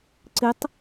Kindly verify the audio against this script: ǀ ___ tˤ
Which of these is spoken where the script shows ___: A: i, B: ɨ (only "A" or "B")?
B